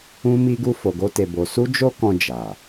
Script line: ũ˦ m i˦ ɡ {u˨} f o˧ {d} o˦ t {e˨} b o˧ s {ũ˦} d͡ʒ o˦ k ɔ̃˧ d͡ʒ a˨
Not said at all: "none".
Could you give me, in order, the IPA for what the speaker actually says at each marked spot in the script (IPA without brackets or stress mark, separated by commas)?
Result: u˦, ɡ, e˧, u˦